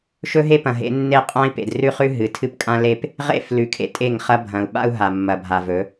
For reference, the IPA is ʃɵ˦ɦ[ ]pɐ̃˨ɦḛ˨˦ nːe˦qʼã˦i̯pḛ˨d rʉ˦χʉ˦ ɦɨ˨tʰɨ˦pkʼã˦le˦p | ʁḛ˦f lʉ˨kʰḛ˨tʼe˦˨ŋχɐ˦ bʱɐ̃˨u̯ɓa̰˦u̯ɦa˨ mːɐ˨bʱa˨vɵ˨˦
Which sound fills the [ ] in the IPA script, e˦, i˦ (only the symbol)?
e˦